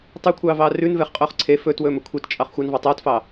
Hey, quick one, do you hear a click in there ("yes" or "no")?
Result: yes